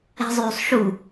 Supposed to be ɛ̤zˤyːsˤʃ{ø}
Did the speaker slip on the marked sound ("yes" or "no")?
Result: yes